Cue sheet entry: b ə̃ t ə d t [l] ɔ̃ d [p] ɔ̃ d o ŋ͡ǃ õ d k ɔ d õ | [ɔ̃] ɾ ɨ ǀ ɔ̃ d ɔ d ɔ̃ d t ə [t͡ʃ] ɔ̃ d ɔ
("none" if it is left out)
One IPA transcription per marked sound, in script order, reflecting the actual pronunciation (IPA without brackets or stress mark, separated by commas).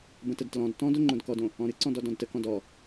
l, t, ɔ̃, k